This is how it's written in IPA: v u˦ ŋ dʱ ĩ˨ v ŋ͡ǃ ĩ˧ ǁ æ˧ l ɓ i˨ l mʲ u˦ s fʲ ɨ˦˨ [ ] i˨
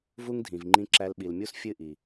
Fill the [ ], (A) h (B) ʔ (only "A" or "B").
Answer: B